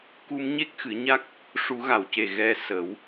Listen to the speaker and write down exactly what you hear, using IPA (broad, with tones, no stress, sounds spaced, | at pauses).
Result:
k u˧ m ɲ e˦˥ k̚ x ɨ˨˩˦ ɲ a˦˥ k̚ | ʂ u˨˩˦ ɣ a˨˩˨ w c e˨˩ ɣ ɛ˧ s ə˨˩˦ w